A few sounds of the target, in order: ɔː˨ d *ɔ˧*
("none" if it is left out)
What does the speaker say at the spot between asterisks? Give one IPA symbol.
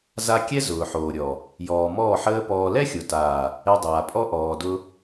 ʊ˧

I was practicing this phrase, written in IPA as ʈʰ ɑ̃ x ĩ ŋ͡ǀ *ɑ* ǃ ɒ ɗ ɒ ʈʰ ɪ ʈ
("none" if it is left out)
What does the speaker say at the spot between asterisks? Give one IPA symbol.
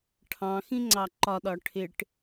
ɑ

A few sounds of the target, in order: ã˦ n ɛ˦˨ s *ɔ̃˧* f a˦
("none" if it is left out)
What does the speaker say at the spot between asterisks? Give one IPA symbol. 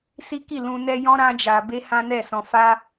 ɔ̃˧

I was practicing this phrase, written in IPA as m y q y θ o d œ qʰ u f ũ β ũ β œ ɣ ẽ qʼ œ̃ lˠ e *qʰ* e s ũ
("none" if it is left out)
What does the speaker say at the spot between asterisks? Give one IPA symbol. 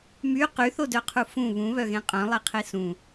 qʰ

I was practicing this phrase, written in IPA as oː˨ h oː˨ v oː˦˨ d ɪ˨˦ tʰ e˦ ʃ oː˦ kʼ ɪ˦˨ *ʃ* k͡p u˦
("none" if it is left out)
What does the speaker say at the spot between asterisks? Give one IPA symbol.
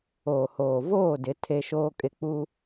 none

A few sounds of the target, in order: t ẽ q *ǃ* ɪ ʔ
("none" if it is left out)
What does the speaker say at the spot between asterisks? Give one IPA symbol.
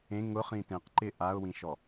ǃ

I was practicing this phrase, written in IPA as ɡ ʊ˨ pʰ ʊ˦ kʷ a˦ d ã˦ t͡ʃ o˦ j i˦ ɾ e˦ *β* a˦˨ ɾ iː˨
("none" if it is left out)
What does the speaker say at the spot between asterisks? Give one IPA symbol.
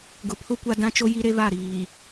β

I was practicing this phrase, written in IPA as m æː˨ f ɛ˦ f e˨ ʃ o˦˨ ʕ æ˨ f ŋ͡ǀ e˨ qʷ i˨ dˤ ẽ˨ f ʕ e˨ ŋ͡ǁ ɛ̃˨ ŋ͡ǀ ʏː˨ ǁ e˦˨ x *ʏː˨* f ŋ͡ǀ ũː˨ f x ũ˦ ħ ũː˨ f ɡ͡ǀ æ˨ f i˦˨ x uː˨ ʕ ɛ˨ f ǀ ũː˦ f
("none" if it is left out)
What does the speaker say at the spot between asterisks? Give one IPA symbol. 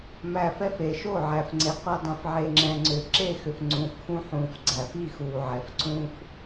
ʏ˨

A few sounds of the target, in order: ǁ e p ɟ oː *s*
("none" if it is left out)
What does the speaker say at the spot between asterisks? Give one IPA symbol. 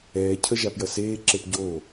none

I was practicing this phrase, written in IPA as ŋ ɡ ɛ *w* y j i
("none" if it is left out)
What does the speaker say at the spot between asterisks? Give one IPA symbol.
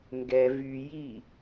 v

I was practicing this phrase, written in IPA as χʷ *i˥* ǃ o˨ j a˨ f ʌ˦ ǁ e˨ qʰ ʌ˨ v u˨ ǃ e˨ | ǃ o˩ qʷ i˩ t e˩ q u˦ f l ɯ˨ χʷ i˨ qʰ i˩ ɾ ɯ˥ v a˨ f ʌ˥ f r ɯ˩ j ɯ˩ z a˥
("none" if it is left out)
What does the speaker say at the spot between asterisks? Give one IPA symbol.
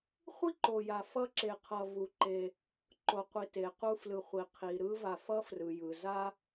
i˥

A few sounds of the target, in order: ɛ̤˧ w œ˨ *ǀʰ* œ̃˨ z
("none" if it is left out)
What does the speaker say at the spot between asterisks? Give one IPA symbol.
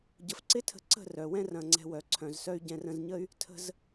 ǀʰ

